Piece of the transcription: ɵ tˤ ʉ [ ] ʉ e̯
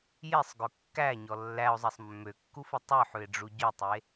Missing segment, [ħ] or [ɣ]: ħ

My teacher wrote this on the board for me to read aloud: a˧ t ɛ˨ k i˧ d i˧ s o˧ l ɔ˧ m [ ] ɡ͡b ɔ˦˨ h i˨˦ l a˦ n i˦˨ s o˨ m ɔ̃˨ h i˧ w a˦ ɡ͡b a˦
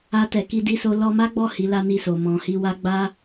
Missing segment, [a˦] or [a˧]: a˦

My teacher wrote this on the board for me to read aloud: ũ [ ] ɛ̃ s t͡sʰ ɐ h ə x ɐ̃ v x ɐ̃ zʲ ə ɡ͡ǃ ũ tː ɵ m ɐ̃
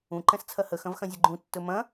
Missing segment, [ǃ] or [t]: ǃ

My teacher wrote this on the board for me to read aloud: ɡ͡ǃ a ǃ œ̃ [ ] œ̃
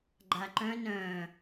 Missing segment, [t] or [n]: n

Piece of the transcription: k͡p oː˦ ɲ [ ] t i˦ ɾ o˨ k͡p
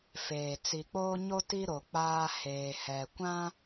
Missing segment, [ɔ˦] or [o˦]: o˦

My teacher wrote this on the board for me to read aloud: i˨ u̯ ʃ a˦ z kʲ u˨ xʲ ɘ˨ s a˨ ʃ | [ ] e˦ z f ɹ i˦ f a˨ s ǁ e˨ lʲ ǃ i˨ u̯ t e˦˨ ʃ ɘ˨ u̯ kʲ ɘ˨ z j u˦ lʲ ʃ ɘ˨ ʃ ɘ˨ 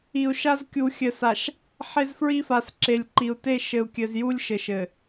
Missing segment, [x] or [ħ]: ħ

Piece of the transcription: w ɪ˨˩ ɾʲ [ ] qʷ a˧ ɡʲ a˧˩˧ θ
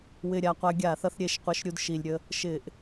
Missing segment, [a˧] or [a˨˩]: a˨˩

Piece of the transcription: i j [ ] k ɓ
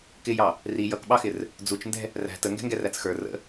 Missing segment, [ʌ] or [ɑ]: ʌ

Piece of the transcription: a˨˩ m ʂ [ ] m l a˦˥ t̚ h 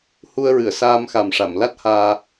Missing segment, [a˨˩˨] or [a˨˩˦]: a˨˩˨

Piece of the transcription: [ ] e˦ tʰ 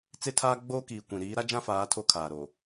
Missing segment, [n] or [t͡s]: t͡s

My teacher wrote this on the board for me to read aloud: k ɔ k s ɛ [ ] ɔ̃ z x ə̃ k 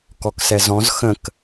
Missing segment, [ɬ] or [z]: z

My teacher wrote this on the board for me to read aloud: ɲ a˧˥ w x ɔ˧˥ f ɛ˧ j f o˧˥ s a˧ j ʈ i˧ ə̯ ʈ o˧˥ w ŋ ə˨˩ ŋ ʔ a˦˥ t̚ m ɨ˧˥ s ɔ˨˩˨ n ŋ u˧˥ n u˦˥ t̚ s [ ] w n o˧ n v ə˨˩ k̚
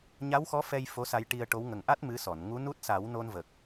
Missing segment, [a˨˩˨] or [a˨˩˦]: a˨˩˦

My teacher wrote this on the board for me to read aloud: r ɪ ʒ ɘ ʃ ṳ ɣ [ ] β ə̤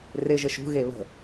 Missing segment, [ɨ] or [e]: e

